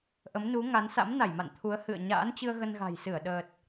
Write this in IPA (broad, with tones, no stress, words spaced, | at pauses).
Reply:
ʔə˨˦mnu˨˦ŋa˨˦n sa̰˧˥mna˧˩jma̰˧˨n t̪ʰu˨˦ə̯ hɨ̰˧˨ə̯ ɲa̰ː˧˥nt͡ɕɨ˧ə̯ ɣə˧nɣa̤˨˩jsɨ˧˩ə̯ ɗəː˨˩t̚